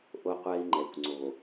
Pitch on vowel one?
high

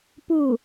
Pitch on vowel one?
falling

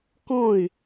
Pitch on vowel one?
falling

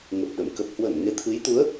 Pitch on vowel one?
low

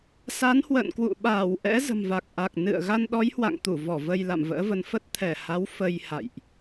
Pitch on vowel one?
rising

